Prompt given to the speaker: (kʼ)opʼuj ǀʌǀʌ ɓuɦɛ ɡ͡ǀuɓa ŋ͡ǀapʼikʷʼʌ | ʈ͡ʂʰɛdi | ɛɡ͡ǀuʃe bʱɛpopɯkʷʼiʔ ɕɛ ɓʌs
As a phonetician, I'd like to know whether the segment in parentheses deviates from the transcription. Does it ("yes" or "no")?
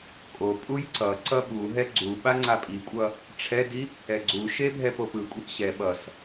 no